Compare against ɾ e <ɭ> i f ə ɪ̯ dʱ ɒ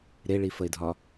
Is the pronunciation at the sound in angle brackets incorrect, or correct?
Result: correct